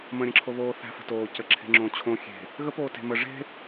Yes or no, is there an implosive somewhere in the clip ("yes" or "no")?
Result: no